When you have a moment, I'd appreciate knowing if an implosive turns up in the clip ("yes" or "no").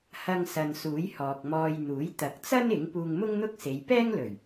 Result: no